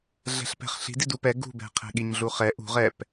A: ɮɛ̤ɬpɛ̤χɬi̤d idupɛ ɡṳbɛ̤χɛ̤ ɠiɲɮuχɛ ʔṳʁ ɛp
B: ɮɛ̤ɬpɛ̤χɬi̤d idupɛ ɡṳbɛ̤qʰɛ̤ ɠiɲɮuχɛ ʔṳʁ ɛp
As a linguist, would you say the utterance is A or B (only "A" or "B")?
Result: B